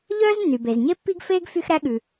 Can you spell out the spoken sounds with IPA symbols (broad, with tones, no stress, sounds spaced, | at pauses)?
ʎ œː˥ z nː y˩ b e˩ z ɲ e˥ pː i˥ ɡ f eː˥ ɡ f y˥ x ɾ æ˥ ɠ ʉ˩